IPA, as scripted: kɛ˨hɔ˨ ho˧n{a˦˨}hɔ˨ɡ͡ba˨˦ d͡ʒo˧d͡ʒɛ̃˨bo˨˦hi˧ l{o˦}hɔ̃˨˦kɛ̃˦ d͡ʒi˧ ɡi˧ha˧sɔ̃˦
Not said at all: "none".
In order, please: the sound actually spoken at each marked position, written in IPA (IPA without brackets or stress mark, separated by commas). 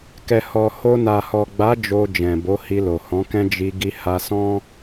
a˨, o˨